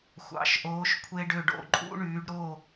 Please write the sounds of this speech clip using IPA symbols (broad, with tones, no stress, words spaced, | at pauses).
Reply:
xʷɑ̰˨˦ʃʔoː˨˦ʃ kʷʰe˦ɖø˦˨ɖ o̰˦˨ǃʼṵ˦ ɳyː˨˦ɖɾo˦˨